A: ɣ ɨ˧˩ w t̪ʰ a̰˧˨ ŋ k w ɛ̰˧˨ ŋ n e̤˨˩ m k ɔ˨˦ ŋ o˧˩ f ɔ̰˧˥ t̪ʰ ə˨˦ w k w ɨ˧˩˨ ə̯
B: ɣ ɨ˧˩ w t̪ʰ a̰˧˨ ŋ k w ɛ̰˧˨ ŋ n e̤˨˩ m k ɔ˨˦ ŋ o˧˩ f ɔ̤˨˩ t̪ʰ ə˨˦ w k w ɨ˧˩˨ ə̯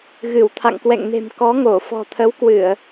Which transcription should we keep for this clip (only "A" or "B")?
B